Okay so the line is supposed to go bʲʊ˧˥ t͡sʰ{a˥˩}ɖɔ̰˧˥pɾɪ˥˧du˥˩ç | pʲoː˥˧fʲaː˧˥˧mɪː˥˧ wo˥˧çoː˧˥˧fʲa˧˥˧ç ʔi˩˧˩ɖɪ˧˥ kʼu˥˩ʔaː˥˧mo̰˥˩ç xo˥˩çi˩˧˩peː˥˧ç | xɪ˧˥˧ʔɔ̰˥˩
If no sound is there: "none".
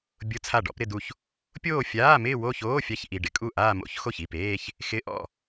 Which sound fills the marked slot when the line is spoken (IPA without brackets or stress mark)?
a˥˩